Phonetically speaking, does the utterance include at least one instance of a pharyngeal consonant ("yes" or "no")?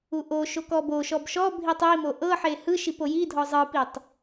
yes